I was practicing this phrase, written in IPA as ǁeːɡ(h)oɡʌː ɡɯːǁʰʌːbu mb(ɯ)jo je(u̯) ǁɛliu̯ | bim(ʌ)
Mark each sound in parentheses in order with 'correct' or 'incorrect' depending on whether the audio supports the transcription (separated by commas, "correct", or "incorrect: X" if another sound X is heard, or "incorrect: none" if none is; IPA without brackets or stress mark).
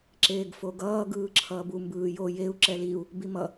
incorrect: f, incorrect: ɯː, correct, correct